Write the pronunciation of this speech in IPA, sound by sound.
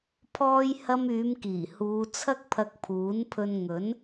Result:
pʰ ɔː˥ j h ɐ˥ m yː˨˧ m k iː˨˩ h uː˨˧ t͡sʰ ɐ˥ k̚ pʰ ɐ˧ k̚ pʰ uː˨˥ n pʰ ɵ˧ n ŋ ɵ˨˥ n

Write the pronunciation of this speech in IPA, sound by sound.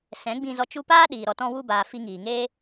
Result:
s ɛ̃˨˦ ɡ͡b ĩ˧ z ɔ˧ t͡ʃ u˦ p aː˦ ɗ iː˨ ɾ ɔ˨ t ɔ̃˧ w u˧ b aː˨ f i˧ ŋ iː˨ ŋ eː˦

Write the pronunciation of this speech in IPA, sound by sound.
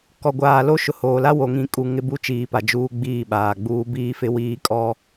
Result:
k ɔ˨ ɡʷ aː˨ l o˦ ʃ ʊ˨ h oː˨ l a˦ w o˨ ŋ ĩ˨ kʼ u˨ ŋ ɪ˦ b u˦ t͡ʃ iː˨ p a˨ d͡ʒ uː˦ ɡ͡b iː˦˨ ɓ aː˨ ɡ͡b uː˦ b iː˦ f ɪ˦ w iː˦ kʼ ɔ˦

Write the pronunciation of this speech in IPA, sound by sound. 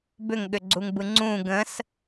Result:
b ʏ ŋ ɠ ʏ ɡ͡ǀ u ŋ b ɯ ŋ͡ǀ ũ ɡ ə̃ s

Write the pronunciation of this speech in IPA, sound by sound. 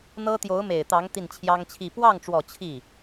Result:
n̪ ɤ˥ t̪ j o˧˥ ʊ̯ m e˨˩ ɪ̯ t̪ ɑ˧˥ ŋ t̪ i˥˩ n t͡ɕʰ j ɑ˥ ŋ t͡ɕʰ i˥˧ p w ɑ˥˩ ŋ ʈ͡ʂ w ɔ˨˩ t͡ɕʰ i˥˩

